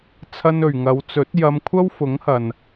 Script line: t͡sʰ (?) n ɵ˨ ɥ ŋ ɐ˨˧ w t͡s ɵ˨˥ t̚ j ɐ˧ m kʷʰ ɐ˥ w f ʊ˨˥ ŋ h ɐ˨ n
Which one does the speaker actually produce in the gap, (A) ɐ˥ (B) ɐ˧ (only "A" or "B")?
A